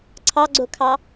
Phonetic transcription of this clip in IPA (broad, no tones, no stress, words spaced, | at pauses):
ǀʰɑɡ͡ǀokʰɑ